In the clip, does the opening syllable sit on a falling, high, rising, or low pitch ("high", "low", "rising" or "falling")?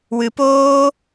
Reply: low